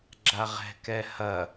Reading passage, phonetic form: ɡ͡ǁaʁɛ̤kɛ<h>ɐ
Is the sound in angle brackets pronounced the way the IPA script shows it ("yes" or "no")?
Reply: yes